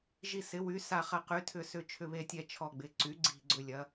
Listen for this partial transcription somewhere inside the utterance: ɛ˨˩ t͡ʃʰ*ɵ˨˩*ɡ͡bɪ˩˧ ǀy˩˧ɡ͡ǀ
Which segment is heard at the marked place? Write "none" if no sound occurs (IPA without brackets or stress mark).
ɔ˨˩